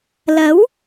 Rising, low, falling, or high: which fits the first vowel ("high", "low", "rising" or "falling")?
rising